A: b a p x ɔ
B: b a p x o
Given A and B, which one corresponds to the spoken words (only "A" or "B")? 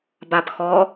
A